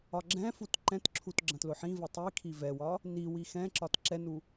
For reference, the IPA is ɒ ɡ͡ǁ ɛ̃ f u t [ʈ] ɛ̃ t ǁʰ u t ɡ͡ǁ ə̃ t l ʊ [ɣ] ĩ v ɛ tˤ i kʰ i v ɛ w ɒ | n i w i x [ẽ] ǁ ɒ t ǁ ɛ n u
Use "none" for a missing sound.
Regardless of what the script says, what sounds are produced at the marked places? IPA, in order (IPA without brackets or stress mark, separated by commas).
ǃ, ħ, ɛ̃